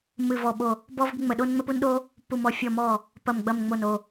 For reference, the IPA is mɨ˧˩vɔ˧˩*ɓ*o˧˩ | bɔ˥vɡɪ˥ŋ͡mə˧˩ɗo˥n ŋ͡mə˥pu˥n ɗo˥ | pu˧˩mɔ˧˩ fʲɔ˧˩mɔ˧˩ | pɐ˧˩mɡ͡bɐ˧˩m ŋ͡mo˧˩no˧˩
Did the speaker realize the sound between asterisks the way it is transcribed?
yes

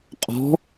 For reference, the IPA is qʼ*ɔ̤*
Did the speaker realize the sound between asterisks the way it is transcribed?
yes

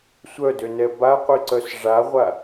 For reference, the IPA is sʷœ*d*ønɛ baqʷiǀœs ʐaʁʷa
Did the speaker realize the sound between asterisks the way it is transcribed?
yes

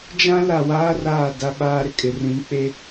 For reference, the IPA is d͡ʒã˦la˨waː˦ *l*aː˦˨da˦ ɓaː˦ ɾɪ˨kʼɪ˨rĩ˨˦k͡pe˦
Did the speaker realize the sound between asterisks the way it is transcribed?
no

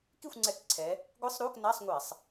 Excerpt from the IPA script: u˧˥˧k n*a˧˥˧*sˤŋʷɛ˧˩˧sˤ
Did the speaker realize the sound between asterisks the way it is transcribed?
yes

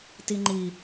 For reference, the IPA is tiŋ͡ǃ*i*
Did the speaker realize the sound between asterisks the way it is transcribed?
yes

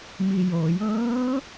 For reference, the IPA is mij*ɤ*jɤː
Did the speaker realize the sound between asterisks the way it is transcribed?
no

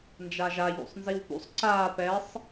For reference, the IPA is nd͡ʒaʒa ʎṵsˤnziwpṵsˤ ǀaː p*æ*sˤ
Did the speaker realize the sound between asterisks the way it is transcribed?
no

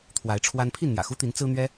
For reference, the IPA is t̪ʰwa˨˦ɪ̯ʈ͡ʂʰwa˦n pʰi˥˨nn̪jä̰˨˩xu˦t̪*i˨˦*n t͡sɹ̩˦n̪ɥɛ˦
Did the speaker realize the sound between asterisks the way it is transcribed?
yes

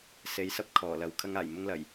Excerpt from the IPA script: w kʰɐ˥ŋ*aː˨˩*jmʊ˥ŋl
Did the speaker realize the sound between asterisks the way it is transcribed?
yes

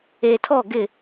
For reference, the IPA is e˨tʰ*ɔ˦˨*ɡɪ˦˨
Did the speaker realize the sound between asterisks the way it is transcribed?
yes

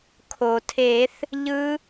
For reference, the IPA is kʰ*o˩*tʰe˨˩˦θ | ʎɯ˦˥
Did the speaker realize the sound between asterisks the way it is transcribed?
yes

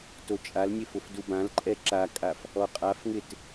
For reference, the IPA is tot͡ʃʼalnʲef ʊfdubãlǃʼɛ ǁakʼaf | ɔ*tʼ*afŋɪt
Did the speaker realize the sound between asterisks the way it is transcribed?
no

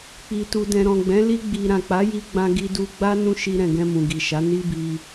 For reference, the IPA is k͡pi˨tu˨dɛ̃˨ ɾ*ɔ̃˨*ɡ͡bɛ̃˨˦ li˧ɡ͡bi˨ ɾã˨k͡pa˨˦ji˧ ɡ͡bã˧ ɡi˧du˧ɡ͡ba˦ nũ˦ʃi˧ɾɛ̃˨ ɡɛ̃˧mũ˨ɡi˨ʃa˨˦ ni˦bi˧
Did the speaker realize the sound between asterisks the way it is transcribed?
yes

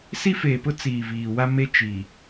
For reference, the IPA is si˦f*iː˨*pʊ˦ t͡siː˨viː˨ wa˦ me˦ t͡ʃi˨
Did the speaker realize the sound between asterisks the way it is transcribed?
no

